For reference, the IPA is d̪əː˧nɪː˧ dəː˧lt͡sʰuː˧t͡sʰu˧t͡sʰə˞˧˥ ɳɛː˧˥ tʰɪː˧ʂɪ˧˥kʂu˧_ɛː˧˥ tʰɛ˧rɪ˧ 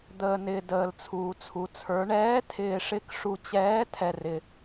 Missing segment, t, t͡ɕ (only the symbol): t͡ɕ